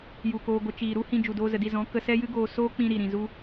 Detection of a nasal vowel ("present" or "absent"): present